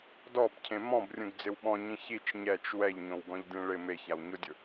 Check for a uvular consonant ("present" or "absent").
absent